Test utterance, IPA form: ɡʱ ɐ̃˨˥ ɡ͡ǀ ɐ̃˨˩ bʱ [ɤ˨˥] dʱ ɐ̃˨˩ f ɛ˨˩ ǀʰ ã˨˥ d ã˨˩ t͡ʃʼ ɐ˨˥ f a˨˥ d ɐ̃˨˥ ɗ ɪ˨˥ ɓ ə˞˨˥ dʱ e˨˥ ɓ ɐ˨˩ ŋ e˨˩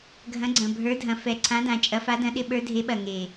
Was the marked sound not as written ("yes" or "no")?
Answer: yes